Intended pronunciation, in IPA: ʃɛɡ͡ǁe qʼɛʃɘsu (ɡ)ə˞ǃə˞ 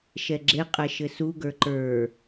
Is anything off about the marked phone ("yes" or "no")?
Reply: no